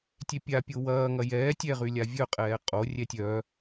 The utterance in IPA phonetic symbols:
tʲ e pʲ a pʲ o w ɐː ŋ ɐ j ɛː tʲ ɛ ʁ y lʲ a vʲ œ qʼ ɛː qʼ o rʲ ɛ tʲ œ

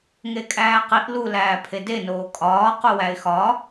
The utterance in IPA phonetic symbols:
ŋ e kʼ æː q i ʔ l u l æː pʰ e d e n oː kʼ ɒː q u w æ ɪ̯ x ɒ

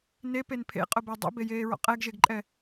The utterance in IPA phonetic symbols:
n e p e n pʰ ḛ qʼ ʊ b ɛ dˤ ḛ b e j eː ɹ ɔ̰ qʼ ɛ ɡ ʒ e ɡ ǃʼ ɛ

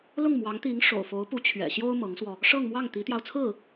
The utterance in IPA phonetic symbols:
l ʊ˥˩ ŋ m w ɑ˧˥ ŋ t̪ i˧˥ ŋ ʂ o̰˨˩ ʊ̯ f o˧˥ ʊ̯ p u˧˥ t͡ɕʰ ɥ ɛ̰˨˩ ɕ j o˥ ʊ̯ m ɤ˧˥ ŋ s w ɔ˧ | ʂ ɤ˥˧ ŋ m w ɑ˥˩ ŋ t̪ i˧˥ t̪ j ɑ˧ ʊ̯ t͡sʰ ɹ̩˥˩

